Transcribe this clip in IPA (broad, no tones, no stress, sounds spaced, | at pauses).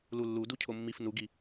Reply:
l u lː u d u cʰ o mː i f n u ɡ i